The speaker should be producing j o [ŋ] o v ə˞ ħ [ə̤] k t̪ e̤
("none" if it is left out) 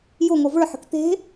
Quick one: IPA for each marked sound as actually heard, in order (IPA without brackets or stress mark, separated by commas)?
ŋ, ə̤